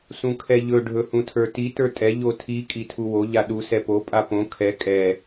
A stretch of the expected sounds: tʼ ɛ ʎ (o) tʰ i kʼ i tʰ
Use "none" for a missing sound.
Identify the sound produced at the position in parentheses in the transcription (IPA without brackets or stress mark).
o